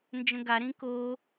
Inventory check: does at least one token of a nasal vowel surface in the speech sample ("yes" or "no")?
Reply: yes